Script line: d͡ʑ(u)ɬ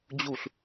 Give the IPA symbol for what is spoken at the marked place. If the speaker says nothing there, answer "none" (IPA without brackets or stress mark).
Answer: u